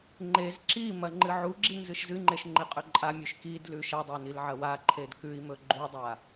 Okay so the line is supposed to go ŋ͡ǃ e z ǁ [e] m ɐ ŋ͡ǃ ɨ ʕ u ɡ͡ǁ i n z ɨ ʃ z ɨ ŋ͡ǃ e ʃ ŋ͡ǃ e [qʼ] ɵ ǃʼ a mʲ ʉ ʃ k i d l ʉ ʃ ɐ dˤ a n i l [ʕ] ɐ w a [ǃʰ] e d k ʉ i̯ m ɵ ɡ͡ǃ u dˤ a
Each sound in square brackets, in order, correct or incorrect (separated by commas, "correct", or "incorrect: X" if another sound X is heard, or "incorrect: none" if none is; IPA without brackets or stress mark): incorrect: i, correct, correct, correct